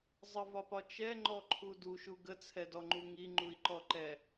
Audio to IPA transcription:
zˤ ə v ɒ p ɒ t͡ʃ ɛ ŋ͡ǃ ɔ ǃʰ u d u ʃ u ɡ ə t͡sʰ ɛ d ɔ ŋ͡ǃ u ŋ i ŋ͡ǃ u i̯ ǃ ɔ ǃ ɛ

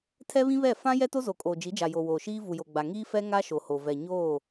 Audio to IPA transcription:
tʰ ɛ˦ β ĩ˦ β ɛ˦˨ f ã˦ j ɛ˦ t o˦ z o˨ kʼ oː˨ d͡ʒ i˨˦ d͡ʒ a˨ j o˨ w oː˨ ʃ iː˦ v u˨ j o˨ ɡ͡b a˨ ŋ iː˦ f ɛ˦ ŋ a˦ ʃ o˨ h o˨ v ɛ˨ ɲ oː˦˨

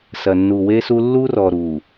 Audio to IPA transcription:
s ɐ˨ nː u˨ w e˦ s u˦ lː u˦ r ɔ˨ ɾ u˨

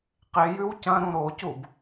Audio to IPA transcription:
q e j ʉ w c ɐ̃ ɾ ũ ɾ o c u b

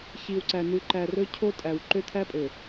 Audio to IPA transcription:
ç i˨ w ǀ æ˨ n ʉ˨ ǃ æ˨ r ɵ˦ cʰ o˦ tʼ æ˨ w ǃ ø˦ t̪ʰ æ˦ pʼ ø˨

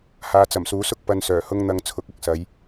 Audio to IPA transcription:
h aː˨˧ t͡s ɐ˨˩ m s uː˨˥ s ʊ˥ k̚ p ɐ˧ n s œː˨˩ h ʊ˥ ŋ n̪ ɐ˧ ŋ t͡sʰ ʊ˨˥ k̚ ɐ˨ k̚ s ɐ˨˧ j

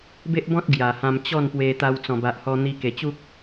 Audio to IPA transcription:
b e˦ ʔ b ɔ̃˦ t̚ ɡ j a˨˩ h ã˧ m t͡ɕ ɔ˥˧ n p w e˧ t̪ a˧ w t͡s ɔ̃˨˩ b a˨ ʔ h ɔ˧ n̪ i˧ k e˨˩ t͡ɕ u˦ k̚

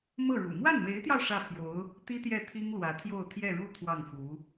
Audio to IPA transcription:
m ɤ˥˩ ɻ ṵ˨˩ m w a˥˩ n m e˧˥ ɪ̯ t̪ j ɑ˧ ʊ̯ ʂ ä˥˩ pʰ j o˧˥ ʊ̯ | t̪ i˥ t̪ j ɛ˥˩ t̪ʰ i˥ ŋ l w ä˧˥ t̪ʰ j o˥˧ ʊ̯ t̪ʰ j ɛ˥˧ ɻ u˥˧ t̪ʰ w ɑ˥˩ ŋ f u˧˥

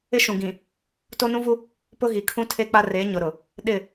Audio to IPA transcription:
ɪ˦ ʃ ũ˨ ɡ ĩ˨ | t o˦ n ũ˦ v u˦ | p ʊ˦ ɣ i˨ kʰ ũ˦ tʰ e˦ k͡p a˦ r e˨˦ ɲ ʊ˨ ɾ ʊ˨ | ɗ ɪ˦˨

